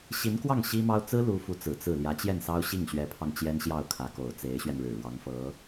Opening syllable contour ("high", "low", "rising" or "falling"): rising